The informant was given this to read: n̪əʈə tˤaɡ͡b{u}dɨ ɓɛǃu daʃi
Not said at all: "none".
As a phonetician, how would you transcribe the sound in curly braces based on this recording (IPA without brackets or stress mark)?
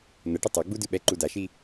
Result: u